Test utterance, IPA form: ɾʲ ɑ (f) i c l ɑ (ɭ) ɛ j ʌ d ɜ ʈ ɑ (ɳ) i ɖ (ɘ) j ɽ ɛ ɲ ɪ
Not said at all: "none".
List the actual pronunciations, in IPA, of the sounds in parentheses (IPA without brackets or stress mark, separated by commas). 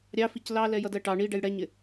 f, l, ɳ, ɛ